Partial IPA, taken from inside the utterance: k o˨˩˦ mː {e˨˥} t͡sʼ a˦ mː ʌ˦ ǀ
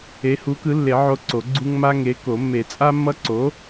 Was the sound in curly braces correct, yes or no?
no